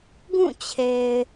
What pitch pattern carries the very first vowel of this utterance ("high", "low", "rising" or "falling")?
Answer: falling